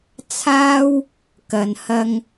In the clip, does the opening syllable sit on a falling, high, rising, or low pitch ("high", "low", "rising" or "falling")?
high